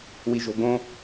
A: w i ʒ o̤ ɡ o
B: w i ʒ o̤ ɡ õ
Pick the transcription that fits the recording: B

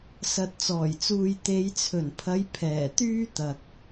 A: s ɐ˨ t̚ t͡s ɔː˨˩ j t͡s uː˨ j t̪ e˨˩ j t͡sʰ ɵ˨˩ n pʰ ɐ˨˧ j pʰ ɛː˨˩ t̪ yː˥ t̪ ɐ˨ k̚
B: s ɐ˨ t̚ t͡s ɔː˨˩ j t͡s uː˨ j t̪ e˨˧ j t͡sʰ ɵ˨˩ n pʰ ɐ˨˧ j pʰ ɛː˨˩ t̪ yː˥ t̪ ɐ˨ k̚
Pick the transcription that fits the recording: B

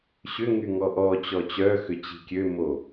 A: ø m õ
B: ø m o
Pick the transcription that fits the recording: B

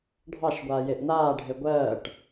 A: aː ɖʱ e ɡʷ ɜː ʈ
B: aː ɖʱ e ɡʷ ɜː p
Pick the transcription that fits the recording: A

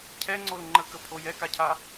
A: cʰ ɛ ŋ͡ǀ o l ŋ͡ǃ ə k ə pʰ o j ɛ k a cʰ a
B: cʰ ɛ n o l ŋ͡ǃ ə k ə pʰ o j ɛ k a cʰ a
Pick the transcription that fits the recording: A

